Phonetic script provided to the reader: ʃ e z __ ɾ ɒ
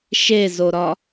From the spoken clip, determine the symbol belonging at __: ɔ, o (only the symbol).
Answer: o